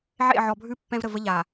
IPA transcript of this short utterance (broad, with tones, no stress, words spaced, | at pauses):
ʕḛ˦˨ʕɔ˨bʱʉ˦ pːɛ̃˦vɾə˨və˦ ʎa˨